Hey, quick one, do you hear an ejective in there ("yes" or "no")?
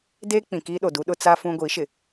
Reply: no